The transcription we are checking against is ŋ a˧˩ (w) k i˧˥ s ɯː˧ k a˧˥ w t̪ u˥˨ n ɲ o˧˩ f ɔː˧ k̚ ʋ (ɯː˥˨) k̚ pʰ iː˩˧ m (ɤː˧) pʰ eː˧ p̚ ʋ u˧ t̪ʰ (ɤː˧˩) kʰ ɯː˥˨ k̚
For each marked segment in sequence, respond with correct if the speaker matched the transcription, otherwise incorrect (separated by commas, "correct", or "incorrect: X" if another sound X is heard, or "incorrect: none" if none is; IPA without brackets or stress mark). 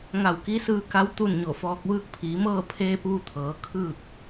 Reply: correct, incorrect: ɯː˧, incorrect: ɤː˥˨, incorrect: ɤː˩˧